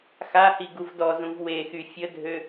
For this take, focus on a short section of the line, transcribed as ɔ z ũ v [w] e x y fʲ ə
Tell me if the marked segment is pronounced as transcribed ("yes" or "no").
yes